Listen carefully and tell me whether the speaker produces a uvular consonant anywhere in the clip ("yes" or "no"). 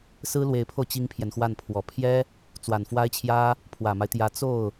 no